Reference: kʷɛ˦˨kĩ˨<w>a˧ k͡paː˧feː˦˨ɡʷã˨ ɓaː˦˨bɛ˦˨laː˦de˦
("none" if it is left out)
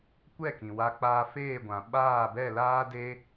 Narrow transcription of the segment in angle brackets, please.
w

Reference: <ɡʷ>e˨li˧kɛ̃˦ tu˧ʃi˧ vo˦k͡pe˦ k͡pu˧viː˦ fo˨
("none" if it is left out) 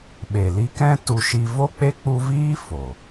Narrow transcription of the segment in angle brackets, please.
ɓ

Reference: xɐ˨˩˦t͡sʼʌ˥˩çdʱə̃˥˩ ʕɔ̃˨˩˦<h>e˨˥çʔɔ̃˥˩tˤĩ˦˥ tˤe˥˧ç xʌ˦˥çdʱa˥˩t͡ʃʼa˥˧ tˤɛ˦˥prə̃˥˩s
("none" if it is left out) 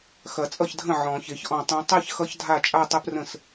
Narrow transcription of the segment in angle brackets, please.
ç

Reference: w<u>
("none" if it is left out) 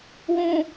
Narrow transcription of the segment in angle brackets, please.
ũ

